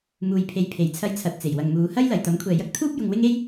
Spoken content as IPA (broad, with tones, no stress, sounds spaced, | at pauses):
m uː˨ j pʰ e˨˥ j pʰ e˨ j t͡sʰ ɐ˥ j t͡sʰ ɐ˧ t̚ t͡s e˨˩ j w ɐ˨ ŋ m uː˨˧ h ɐ˥ j l ɐ˨ j t̪ ɐ˨˥ m kʷʰ ɛː˨ j ɐ˥ k̚ t̪ʰ uː˥ p̚ j ʊ˧ ŋ w ɪ˥ ŋ e˥ j